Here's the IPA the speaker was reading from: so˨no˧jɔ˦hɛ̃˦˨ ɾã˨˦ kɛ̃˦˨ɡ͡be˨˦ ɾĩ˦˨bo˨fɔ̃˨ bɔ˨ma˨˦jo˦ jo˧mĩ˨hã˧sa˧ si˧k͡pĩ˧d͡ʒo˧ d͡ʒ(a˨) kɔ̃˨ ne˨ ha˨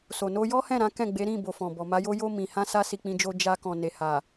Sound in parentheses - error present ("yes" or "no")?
yes